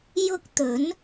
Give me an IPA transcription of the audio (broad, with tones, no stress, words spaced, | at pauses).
jʊ˥k̚ t̪ɵ˨˥n